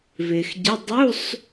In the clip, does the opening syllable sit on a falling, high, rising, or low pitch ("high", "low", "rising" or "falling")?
low